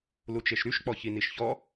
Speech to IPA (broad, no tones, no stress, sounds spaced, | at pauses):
l u t͡ʃ e ʃ ɾ y ʃ k͡p ɔ ç i n i ʃ ç ɔ